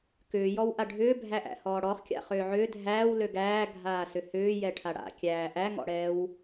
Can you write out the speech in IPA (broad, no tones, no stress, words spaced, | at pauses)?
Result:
kʏːjɔw ʔaɖʱʏːbʱæʔæ̰ hɔːɽɔχkʲa̰ χʏːʕʏː dʱæːw løɡæː ɡʱaːsʏhʏː jɛʈʰaɽa̰kʲæː ʔæŋɔ̰ɽɛːw